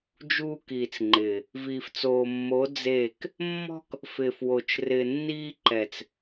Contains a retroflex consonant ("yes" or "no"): no